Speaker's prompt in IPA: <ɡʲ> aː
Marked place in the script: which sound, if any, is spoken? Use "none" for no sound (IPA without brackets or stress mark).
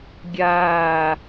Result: ɡʲ